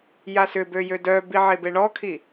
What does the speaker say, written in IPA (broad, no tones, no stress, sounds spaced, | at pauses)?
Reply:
j a s ʏ b ø j ø d œ b i ʕ e b e ɳ ɔ kʰ i